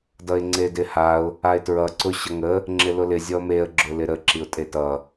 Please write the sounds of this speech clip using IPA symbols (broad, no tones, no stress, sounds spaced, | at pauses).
d ʌ ɪ̯ ŋ͡ǀ e d ɪ h a ʊ̯ | a ɪ̯ t ɹ ʌ ǀ ʊ ɕ ʌ ŋ ə | ŋ͡ǁ ɪ l ʊ l ɪ zʲ ɔ m e ə̯ ɡ͡ǁ ʊ l ɪ ɾ ə ǁ i ʊ̯ tʼ e t ʌ